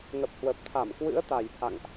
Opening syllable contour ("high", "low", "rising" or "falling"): low